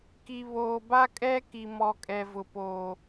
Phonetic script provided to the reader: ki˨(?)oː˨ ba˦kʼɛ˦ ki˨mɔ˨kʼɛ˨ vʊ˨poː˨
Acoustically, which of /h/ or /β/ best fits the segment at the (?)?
β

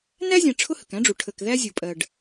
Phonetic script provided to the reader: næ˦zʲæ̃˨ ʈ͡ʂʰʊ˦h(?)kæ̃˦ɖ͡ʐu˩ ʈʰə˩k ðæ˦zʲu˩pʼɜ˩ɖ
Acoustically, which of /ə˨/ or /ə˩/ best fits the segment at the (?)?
ə˩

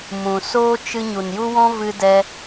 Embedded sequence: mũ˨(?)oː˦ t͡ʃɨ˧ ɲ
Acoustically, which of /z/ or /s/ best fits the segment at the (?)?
s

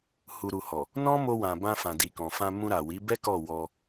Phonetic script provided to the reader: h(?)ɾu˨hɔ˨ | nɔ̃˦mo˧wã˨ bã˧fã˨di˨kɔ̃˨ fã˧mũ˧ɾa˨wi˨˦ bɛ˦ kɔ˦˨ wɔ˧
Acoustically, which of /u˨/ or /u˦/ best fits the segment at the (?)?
u˨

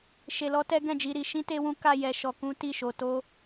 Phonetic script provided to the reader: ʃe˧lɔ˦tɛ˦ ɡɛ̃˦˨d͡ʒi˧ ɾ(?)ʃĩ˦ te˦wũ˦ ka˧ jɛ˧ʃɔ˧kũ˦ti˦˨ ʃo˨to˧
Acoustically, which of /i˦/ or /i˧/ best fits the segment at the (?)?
i˧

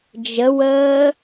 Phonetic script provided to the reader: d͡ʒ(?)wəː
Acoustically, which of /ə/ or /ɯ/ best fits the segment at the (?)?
ə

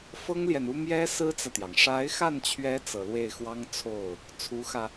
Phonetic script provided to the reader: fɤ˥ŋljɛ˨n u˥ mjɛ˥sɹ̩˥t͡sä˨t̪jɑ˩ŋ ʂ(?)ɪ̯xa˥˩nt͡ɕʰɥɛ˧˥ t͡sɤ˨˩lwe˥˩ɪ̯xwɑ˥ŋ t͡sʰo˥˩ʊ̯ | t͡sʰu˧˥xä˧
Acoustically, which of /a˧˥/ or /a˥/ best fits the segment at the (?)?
a˧˥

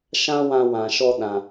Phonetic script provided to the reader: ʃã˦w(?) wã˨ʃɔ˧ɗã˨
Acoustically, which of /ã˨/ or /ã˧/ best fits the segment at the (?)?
ã˧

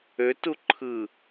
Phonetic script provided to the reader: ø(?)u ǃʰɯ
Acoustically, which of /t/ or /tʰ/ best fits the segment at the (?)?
t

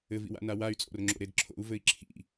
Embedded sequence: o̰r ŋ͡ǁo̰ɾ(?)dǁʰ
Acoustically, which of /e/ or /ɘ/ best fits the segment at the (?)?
e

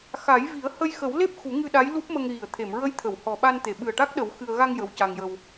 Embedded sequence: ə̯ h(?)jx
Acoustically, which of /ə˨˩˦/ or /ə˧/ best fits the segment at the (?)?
ə˧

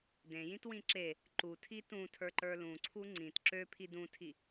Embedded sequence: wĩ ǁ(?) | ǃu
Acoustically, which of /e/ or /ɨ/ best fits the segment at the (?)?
e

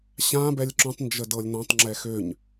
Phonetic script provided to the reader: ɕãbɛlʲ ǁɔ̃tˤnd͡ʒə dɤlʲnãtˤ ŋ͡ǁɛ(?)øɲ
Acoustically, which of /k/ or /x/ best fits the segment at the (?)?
x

